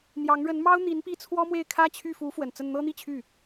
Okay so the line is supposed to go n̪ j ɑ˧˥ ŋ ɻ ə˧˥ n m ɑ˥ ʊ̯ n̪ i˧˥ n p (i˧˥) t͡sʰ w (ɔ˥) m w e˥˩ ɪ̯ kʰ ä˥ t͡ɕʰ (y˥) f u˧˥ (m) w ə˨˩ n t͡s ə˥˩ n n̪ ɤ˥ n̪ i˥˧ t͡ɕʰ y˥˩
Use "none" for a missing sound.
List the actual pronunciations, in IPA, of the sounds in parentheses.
i˥˩, ɔ˥, y˥˩, f

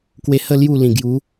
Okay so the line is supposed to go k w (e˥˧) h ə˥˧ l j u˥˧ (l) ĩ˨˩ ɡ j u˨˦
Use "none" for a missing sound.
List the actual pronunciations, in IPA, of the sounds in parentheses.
e˧, l

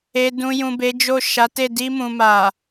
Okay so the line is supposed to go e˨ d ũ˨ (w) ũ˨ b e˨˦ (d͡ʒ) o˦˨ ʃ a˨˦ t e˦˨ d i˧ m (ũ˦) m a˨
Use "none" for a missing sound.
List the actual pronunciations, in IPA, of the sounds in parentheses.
j, d͡ʒ, ũ˨

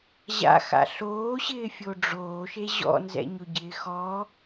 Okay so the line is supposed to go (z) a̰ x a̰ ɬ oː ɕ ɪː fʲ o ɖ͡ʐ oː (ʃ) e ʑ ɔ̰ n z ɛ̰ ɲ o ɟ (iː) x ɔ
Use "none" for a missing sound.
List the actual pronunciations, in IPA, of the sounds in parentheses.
ʑ, ʃ, ɪː

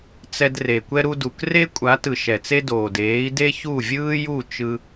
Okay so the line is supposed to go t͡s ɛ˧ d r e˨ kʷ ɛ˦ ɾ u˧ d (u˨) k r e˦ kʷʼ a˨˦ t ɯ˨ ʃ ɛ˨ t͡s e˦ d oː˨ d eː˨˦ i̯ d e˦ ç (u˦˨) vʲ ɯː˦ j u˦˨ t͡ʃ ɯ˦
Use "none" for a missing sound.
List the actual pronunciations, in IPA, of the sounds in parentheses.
u˨, u˦˨

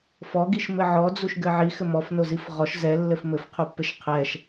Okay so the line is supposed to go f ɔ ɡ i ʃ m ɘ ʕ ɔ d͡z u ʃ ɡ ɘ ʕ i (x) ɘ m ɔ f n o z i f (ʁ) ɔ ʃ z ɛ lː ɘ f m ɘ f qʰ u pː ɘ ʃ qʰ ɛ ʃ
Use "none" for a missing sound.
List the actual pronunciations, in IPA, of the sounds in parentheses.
x, ʁ

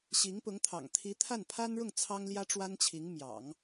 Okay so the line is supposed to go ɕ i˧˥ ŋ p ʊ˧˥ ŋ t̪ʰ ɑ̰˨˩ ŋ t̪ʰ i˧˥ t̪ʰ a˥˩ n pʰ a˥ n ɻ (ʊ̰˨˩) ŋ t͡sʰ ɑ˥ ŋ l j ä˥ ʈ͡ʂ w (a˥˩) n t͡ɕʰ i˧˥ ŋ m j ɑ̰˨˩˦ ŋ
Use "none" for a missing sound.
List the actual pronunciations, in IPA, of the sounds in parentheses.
ʊ˥˩, a˥

